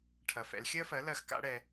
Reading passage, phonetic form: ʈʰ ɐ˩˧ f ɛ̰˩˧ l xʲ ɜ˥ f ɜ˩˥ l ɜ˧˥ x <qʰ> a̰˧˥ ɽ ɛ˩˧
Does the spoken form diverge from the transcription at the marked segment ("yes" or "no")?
yes